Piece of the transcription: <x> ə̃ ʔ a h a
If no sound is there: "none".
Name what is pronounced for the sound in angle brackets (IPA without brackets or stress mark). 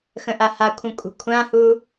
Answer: x